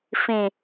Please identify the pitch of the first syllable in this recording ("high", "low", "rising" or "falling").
low